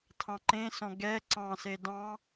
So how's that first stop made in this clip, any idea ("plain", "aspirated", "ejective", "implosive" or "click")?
aspirated